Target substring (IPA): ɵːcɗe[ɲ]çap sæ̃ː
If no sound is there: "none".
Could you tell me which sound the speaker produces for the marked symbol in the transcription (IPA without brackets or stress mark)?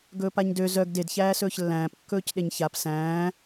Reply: ɲ